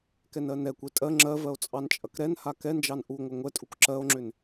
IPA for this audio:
kɛnɜnɛkʷe tʼɜ ŋ͡ǁɜvɜo̯ t͡sʼɑnt͡ʃʼɐkɾɛnha kɛnd͡ʒɑn ʔuŋʷɐ ŋʷɛtʼuk ǁɜo̯ŋ͡ǁʏn

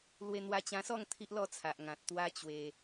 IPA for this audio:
lwe˧n̪wa˧t͡ɕã˧sɔ˥˧ŋ t̪ʰi˦ʔlɔ˥˧t͡sʰa˨ʔ ŋã˨t̚ t̪wa˦t͡ɕwe˧

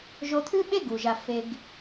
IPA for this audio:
ʒo˧t̪ʰʉ˦ɓe˦ ɡu˨ʒa˧ fe˧ɡ

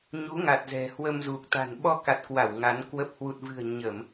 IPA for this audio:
ɲu˨˦ŋa˨˩t̚zɛ̤˨˩ hwə˧mzu˨˩k̚t̪a̤˨˩n ɓɔ˧ka˨˩t̚kwa˧˩w ŋa˨˦nkwə˦˥p̚ hwu˨˩t̚vɨ̤˨˩ə̯ ɲə˧˩˨m

